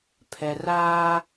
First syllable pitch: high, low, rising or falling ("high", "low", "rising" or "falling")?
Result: low